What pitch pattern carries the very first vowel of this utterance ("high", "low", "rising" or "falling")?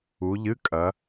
rising